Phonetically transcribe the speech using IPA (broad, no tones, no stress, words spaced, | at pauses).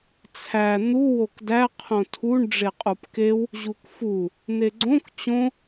t͡sʰæ n̪u wokdæ qʰõtʰuɳ ɖ͡ʐeqʼupkew | ʑukfu | n̪eɡ͡ǀõk t͡ɕõ